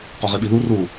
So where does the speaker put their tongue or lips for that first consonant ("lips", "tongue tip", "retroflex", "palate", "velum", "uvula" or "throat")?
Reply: uvula